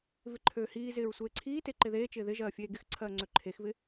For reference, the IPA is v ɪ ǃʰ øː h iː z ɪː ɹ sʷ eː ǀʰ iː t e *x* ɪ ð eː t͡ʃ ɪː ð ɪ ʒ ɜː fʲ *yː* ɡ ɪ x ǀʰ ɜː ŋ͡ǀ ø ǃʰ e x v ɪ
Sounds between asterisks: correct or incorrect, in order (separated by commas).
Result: incorrect, incorrect